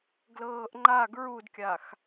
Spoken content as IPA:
ɡ l ɤː ʔ ŋ͡ǃ a ɡ ɹ u d kʲ a x

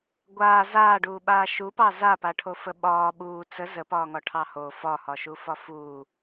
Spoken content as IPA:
ɡʷ aː z aː ɖ uː ɓ aː ʃ u p ɑ z a p a ʈʰ o f ə ɓ ɒː ɓ uː t͡s ə z ə p ɒː ŋ ɒ ʈʰ ɑ h o f ɒ h ɒ ʃ u f ɒ f uː

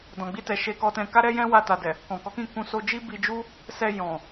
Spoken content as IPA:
d ɔ̃˨ ɡ͡b i˧ t ɛ˨ ʃ e˧ k ɔ˧ t ɛ̃˧ k a˦ ɾ ɛ˦ j ɛ̃˦ w a˧ t a˨ d ɛ˨ | k ɔ̃˨ k ɔ˨˦ k ĩ˦˨ k ũ˧ s o˧ d͡ʒ i˦ b i˧ d͡ʒ u˦ | s ɛ˧ j ɔ̃˨

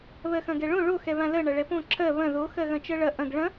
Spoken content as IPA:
β ɜ x ɐ̃ ɡ ɛ ɭ õ ɭ o x ɛ β ã l ɜ ɳ ɐ ɭ ɛ p õ ǁʰ ɜ β ɐ̃ ð o x ɜ ɣ ɐ̃ t͡ʃ ɜ ɭ ɐ ʔ ɐ̃ ɡ ɭ ɐ̃

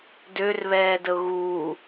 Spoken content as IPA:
d ø r β ɛː d ə ʊ̯ ɣ uː

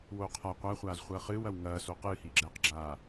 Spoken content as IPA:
w oː qʰ a qʷ a χʷ aː z χʷ ɐː χ ɨː w ɐ w ŋ ɐː s o q ɨː h iː ɡ͡ǁ ɛː q ɡ͡ǁ aː

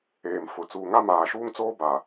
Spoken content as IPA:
eː˨ m f ʊ˨ t͡s uː˨ ŋ a˦ m aː˨ ʃ uː˦ ŋ t͡s oː˦ b a˨

